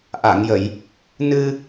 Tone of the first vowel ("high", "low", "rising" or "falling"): low